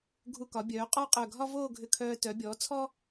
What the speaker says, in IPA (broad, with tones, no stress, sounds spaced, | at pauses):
ɡʱ u˧˩ k ɒ˩˧ bʲ œː˩˧ qʼ ɔ˥˧ qʼ œ˧˩ ɡʱ ɒ˥ v oː˥˧ ɡʱ ʏ˧ kʰ œː˧ t œ˩˧ bʲ ɔː˩˧ t͡sʰ ɔ˥